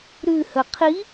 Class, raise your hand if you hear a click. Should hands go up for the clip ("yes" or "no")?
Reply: no